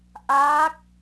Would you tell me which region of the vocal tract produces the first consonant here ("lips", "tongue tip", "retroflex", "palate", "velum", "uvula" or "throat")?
throat